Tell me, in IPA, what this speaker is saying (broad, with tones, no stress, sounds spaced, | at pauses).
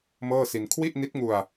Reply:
m ɤː˥˩ s i˧ n kʰ w i˥˩ ʔ n i˦˥ t̚ ŋ u˧ a̯